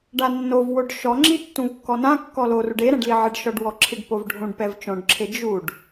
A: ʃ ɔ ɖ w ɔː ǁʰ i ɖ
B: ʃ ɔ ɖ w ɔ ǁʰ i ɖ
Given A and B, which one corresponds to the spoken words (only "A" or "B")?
B